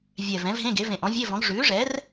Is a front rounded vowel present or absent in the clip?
absent